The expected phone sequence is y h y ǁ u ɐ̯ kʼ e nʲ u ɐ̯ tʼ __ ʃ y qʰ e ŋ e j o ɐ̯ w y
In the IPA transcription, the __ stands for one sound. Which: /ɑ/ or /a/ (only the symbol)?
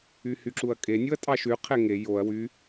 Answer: ɑ